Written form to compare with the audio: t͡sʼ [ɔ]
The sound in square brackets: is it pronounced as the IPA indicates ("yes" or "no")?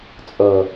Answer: no